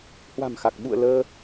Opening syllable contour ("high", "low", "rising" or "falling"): low